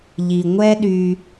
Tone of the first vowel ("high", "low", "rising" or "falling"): low